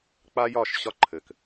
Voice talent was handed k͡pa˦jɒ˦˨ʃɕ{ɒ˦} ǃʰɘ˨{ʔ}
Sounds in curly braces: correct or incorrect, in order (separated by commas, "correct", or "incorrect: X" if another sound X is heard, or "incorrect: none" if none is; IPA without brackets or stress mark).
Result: correct, incorrect: k